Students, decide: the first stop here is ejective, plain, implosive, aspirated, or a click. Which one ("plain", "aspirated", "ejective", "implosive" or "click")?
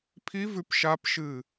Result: aspirated